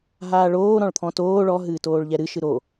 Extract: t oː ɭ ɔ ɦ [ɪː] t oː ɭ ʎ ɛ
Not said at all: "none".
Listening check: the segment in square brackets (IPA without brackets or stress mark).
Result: ɨː